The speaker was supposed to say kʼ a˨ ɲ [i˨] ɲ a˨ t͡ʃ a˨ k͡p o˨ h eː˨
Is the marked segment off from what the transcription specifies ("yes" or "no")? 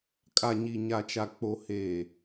no